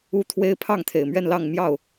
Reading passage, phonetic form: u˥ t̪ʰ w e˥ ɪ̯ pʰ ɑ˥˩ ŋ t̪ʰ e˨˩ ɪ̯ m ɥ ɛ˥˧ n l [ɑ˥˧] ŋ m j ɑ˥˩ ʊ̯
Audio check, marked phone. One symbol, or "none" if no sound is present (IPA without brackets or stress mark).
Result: ɑ˥˧